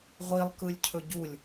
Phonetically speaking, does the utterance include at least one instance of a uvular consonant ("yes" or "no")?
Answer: yes